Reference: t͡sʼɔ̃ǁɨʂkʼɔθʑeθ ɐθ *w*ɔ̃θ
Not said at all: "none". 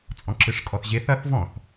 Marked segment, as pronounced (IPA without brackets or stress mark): v